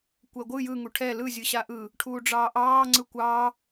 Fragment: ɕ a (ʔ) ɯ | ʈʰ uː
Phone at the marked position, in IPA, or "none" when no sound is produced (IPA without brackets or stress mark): ʔ